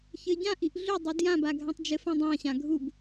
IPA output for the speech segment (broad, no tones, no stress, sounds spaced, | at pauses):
ç ɘ ɟ ã ʔ i ʔ ɮ ʏ dˤ u d j ã b a ɡʱ ã tˤ d͡ʒ ɘ f ã dˤ ã ɕ ã ɡʱ u b